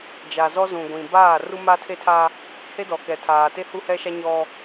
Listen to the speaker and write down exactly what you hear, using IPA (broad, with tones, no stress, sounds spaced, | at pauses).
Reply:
d͡ʒ a˨ z ɔ˦ z ũ˨ ɡʷ ĩ˨ b aː˦˨ r u˦ m a˦ tʰ e˦ tʰ a˦ | h e˦ d ɔ˨ k ɛ˨ tʰ aː˨ t e˦ h u˦ h ɛ˦ ʃ a˦ ɲ ɔ˦